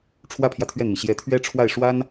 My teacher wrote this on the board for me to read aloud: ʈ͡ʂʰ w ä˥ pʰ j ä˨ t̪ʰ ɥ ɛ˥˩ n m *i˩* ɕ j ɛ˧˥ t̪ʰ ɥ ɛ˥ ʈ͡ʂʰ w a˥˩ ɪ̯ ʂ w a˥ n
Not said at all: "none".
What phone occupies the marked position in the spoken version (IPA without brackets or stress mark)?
i˩